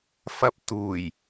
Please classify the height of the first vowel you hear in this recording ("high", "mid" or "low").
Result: low